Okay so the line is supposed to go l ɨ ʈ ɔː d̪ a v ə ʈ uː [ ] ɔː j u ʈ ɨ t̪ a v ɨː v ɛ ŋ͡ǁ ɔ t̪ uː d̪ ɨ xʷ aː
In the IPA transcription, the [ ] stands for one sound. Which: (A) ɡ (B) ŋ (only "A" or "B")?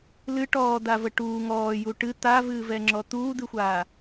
B